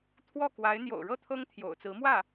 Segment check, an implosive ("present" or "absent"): absent